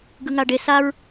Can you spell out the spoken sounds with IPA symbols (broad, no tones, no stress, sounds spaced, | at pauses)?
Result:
ɡ ɯ ŋ a ɖ e s a ɹ